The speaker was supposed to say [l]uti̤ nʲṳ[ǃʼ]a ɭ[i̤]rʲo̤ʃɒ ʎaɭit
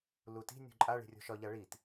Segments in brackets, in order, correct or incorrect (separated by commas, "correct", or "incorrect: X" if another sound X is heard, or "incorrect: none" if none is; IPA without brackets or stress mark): correct, correct, correct